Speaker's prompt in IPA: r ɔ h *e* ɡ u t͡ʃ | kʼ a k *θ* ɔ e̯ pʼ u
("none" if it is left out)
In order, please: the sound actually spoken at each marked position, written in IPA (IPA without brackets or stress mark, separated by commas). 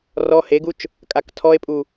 e, tʰ